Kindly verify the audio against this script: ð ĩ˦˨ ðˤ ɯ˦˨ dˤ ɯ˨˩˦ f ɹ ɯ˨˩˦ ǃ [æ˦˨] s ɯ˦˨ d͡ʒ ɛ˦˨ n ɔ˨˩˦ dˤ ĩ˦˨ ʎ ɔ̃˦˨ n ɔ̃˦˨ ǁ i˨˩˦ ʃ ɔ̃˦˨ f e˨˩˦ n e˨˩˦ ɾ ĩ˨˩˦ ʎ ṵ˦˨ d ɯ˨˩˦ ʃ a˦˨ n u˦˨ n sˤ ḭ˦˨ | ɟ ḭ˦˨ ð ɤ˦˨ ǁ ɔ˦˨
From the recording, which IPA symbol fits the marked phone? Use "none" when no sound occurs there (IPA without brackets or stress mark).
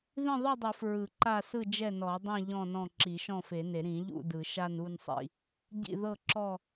a˦˨